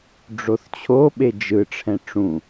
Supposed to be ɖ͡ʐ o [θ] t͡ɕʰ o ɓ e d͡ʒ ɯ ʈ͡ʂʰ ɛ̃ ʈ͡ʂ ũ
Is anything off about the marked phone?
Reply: no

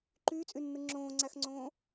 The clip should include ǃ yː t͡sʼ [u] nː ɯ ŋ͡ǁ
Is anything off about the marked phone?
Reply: yes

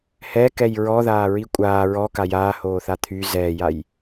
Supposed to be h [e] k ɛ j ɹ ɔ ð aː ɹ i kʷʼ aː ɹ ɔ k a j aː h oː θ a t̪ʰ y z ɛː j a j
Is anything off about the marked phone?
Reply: yes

